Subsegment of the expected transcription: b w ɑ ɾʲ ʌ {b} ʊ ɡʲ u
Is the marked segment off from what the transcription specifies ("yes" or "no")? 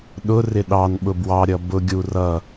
no